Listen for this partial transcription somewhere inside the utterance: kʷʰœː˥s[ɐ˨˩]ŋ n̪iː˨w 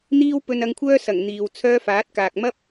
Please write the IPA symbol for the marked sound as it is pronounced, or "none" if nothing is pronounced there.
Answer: ɐ˨˩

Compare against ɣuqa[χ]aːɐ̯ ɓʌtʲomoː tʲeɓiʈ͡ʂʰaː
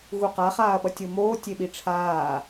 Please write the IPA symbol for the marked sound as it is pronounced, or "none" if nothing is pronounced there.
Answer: χ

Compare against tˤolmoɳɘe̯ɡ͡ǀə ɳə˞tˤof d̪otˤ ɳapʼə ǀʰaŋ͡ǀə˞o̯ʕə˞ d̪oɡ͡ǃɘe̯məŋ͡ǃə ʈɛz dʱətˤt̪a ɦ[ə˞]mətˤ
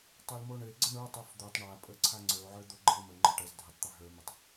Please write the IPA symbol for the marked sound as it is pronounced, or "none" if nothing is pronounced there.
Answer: ə˞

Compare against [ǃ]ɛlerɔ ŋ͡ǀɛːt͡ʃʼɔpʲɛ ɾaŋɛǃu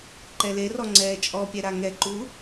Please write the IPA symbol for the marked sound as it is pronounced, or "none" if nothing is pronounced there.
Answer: ǃ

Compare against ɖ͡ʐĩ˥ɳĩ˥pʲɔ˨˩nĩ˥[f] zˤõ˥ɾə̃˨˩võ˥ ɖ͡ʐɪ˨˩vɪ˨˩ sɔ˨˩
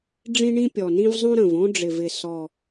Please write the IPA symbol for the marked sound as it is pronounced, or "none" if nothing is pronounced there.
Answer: v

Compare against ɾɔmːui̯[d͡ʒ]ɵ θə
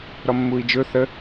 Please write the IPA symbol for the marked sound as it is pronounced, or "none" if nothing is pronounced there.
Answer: d͡ʒ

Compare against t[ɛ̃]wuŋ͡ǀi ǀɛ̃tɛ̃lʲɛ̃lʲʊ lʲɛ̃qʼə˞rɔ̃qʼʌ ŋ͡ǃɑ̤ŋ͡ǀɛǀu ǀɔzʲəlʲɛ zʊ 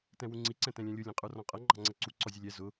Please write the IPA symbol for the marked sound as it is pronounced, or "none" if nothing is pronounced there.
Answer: ɛ̃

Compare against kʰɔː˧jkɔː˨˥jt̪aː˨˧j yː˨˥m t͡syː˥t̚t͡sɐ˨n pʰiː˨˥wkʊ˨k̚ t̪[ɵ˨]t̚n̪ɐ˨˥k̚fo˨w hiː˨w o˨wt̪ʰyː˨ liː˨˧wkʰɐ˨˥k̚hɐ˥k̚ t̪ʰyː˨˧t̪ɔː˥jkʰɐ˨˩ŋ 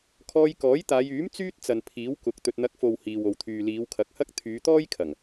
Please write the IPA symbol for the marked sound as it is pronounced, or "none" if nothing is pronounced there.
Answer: ɵ˨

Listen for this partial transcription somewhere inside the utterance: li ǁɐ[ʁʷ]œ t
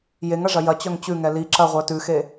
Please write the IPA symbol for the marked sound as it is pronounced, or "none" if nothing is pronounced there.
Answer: ʁʷ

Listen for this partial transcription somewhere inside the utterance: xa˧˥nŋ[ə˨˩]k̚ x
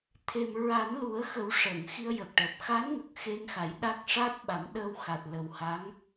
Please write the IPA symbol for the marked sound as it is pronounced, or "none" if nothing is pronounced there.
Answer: ə˨˩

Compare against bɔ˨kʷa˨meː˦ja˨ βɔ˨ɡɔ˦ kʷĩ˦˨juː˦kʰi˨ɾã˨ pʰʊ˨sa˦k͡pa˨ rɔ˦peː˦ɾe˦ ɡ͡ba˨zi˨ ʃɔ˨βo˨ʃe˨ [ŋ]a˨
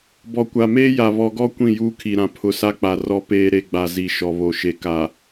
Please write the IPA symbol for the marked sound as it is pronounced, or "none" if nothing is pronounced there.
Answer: k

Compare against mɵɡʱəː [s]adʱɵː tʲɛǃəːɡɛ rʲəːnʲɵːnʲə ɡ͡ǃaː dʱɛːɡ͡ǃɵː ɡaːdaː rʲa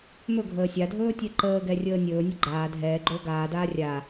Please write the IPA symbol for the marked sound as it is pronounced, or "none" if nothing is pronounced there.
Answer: sʲ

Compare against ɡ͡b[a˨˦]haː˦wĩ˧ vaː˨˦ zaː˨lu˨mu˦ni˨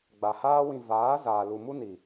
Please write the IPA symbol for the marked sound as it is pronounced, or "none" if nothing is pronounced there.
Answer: a˨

